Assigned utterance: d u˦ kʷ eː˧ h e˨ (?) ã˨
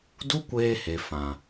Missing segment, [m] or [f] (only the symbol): f